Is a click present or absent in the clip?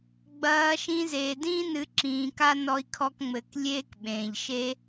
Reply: present